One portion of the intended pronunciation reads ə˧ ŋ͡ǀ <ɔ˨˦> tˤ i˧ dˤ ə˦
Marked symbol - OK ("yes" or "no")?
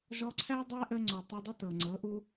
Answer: no